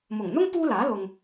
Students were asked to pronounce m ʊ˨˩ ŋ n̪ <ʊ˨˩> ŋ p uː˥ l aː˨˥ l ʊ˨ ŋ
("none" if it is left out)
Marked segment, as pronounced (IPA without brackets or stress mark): ʊ˥